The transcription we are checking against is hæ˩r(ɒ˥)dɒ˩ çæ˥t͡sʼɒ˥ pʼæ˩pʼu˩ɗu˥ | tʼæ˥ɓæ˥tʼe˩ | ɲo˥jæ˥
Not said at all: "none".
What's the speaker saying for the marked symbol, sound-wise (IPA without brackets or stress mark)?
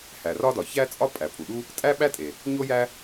ɒ˥